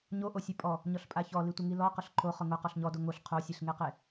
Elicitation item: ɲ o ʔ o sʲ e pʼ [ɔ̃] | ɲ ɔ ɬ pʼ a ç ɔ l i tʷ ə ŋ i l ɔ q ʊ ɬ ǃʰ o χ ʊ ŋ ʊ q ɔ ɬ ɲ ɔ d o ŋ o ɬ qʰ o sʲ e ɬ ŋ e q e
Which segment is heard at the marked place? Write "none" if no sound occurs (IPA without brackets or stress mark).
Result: ɔ